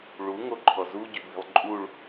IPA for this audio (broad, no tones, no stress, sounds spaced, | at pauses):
ɭ u ŋ o ǃʰ ɔ z u ɟ y b i̤ lˠ ǃʼ u ɭ